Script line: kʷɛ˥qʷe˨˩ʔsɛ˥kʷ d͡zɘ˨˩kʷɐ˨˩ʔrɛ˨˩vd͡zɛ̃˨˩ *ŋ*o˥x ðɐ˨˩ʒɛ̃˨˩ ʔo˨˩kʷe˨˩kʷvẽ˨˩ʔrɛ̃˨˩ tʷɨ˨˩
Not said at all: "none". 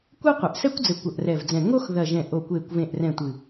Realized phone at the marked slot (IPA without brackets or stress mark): ŋ